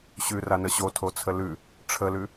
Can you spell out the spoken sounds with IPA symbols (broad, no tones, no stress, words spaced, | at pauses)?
ɕʉranə ɕotʰot͡sʰə lʉ | ʈ͡ʂʰəlʉ